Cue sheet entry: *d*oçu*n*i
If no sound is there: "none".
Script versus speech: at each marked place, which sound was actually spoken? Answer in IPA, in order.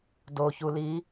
d, l

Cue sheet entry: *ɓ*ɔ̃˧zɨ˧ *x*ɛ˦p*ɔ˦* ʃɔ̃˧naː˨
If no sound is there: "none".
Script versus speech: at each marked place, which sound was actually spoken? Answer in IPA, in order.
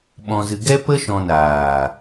ɓ, ɡ, ə˦

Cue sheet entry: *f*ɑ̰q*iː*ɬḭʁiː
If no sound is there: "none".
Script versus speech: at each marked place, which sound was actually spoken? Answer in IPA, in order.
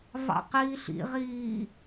v, iː

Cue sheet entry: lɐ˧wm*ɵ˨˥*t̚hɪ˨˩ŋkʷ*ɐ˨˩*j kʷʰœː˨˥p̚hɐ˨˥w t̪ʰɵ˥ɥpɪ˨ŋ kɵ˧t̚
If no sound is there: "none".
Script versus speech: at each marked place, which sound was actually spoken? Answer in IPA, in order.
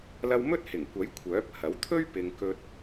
ɵ˥, ɐ˨˥

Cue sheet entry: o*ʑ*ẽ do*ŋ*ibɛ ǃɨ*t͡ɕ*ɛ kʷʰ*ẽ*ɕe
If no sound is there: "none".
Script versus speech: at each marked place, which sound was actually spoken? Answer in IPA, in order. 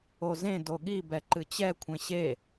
z, ɠ, t͡ɕ, ẽ

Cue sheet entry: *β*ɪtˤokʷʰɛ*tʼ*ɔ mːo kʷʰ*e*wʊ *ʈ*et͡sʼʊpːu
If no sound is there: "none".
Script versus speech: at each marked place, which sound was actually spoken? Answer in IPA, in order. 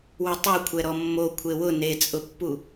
w, ɾ, e, n

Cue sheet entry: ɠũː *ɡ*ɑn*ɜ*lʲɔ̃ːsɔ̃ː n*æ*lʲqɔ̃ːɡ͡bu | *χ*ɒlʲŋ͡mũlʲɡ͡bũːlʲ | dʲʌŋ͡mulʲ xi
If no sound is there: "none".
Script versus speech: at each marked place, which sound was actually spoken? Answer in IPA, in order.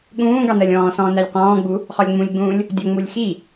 ɡ, ɜ, æ, χ

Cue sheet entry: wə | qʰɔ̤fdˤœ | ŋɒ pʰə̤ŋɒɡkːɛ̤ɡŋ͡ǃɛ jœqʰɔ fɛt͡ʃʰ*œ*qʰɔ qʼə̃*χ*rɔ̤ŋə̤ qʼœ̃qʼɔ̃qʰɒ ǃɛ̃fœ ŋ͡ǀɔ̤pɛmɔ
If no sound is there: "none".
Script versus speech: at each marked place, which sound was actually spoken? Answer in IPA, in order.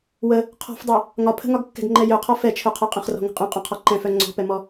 œ, χ

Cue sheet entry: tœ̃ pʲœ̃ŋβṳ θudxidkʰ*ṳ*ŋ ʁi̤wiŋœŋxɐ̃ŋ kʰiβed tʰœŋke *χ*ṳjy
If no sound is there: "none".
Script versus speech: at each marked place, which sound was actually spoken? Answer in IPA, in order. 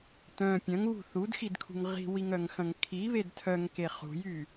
ṳ, χ

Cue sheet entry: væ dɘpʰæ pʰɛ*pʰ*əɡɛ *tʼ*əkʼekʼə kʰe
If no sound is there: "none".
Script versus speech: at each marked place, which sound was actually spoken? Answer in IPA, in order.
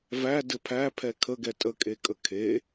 kʰ, tʼ

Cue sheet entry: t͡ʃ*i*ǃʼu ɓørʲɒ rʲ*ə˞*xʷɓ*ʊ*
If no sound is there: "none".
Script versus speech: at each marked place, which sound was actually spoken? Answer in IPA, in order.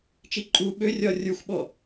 i, ə˞, ɔ

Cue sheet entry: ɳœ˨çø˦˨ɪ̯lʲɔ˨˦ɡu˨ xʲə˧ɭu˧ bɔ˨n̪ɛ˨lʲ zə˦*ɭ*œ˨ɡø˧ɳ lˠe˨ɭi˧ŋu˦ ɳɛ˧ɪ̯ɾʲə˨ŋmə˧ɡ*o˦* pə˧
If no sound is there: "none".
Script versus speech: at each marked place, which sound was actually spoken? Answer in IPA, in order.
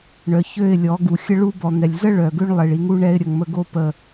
ɭ, o˦

